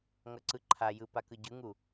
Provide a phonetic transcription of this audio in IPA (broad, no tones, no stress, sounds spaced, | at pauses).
ŋ ʌ ǀ ɯ ǃʰ a j ɯ p a k ɯ ɟ ɯ ŋ u